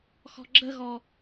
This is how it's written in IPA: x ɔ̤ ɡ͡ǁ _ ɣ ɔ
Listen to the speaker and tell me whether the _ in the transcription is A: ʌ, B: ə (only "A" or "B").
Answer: B